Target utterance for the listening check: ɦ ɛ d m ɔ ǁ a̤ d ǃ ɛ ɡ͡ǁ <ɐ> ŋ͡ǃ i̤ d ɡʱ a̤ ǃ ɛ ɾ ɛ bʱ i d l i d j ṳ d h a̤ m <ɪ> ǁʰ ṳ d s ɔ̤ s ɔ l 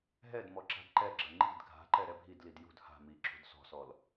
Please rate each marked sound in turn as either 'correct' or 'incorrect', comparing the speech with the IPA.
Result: correct, incorrect: i

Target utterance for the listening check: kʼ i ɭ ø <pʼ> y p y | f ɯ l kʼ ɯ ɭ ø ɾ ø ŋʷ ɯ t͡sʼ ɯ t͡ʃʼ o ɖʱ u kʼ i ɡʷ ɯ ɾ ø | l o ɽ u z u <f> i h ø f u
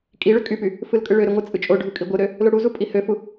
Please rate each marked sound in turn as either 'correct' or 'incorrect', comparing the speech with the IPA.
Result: incorrect: kʼ, incorrect: pʼ

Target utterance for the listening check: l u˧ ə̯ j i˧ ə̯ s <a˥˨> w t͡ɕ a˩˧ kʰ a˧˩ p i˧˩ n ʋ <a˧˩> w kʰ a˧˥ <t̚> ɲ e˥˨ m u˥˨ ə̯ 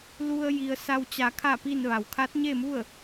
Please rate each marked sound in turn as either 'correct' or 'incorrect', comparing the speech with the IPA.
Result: incorrect: a˧, incorrect: a˩, correct

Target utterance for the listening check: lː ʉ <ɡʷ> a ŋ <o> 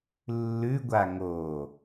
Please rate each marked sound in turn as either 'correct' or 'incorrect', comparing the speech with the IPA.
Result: correct, correct

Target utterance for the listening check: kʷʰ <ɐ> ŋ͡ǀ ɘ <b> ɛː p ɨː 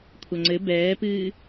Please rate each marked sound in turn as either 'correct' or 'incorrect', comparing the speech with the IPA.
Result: correct, correct

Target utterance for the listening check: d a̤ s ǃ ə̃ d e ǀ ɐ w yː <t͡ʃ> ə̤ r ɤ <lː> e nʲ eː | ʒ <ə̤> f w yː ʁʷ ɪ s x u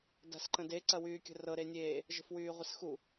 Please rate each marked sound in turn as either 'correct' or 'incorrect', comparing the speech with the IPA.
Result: incorrect: kʲ, incorrect: ɾ, correct

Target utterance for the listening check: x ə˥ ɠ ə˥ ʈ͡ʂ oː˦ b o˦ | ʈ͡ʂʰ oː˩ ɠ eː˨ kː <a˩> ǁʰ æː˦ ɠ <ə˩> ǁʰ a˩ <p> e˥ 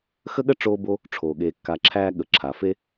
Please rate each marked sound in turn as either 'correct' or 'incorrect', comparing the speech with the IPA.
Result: incorrect: a˨, correct, incorrect: f

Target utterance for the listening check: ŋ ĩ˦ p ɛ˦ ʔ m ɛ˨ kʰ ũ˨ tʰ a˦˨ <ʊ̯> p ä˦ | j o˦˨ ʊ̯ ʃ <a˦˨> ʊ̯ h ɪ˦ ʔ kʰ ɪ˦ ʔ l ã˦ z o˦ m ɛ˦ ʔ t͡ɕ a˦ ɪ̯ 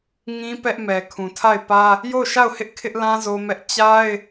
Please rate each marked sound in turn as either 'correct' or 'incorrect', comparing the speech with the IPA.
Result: incorrect: ɪ̯, correct

